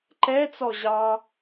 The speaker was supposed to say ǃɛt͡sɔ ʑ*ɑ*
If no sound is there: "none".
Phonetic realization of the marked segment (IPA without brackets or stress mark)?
ɑ